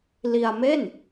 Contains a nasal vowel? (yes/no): no